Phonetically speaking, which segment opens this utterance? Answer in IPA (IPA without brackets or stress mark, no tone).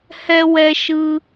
h